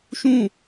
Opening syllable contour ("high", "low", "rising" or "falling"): falling